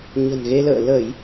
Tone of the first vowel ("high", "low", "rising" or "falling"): low